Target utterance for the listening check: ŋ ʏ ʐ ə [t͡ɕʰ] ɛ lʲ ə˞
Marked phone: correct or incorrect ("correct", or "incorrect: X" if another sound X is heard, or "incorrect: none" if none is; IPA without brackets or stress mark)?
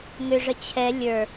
correct